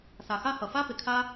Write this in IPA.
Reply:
s a˨ x a˦ h ʌ˨ f a˦ p ɪ˨ kʰ a˦

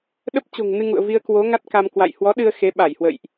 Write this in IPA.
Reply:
ɗ ə˦˥ p̚ t͡ɕ o̤˨˩ ŋ n ɨ˧ ŋ ṵ˧˨ ə̯ v i˧ ə̯ k w o˨˦ ŋ a˦˥ t̚ k a˧ m k w a̰˧˨ j h w ɔ˨˦ ɗ ɨ˧ ə̯ x e˨˦ ɓ a˧˩ j h w ə̰˧˨ j ʔ

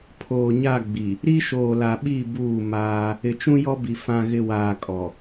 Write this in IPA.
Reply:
pʰ oː˨ ɲ a˦˨ ɡ͡b i˨ | ɾ i˦ ʃ oː˨ l a˨ ɓ i˦˨ b uː˦˨ m aː˦ | ɪ˨ t͡ʃ ũ˦ j ɔ˦ b i˨ f ã˨ ɣ ɪ˨ w aː˨ kʼ ɔ˨

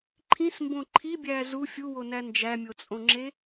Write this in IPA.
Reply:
ǃʰ ĩ s m b õ ǃʰ i bʲ æː z u fʲ u w o n æ n d͡ʒ æ mʲ o t͡sʼ õ ŋ͡ǁ e

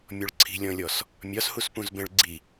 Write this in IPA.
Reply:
mʲ ɔ ɭ ǀʰ i̤ lʲ ɔ̃ lʲ ɔ s | mʲ ɒ s h u s p ũ z b ɛ̃ ɭ ɡ͡ǀ i

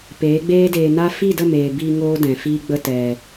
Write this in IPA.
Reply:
p eː˨˦ ɡ͡b eː˦ d eː˧ n a˦ f i˦˨ d ə˦˨ m eː˨ b i˧ ŋ oː˦ d ɛ̃˨ f iː˦ ɡ͡b ə˦˨ t ɛ˨

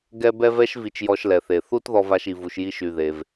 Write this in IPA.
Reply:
ɡ ɛ˥ b ɛ˥ v ɛ˥ ʃ v i˧ t͡ʃ j ɔ˧ ʃ l ɛ˩ θ e˩ θ u˥ t ð ɔ˧ v a˧ ʃ i˩ v u˩ ʃ j i˧ ʃ y˩ ð e˩ v

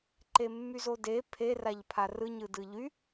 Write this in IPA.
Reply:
ǃ e mː y z o d e pʰ e r a ʎ pʰ a r ɯ ɲ ɯ d ɯ ʎ y

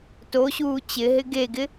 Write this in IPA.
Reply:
t o ɕ uː t͡ɕ ɪ ɦ ɪ ɡ e ɡ ɪ

